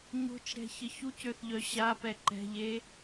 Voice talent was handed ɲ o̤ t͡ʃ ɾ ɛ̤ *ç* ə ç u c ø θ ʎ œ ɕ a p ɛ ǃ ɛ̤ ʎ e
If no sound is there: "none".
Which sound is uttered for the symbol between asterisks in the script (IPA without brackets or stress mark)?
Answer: ç